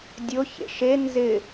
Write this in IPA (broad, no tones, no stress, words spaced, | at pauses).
dʲʊ çḛʃe nzɪ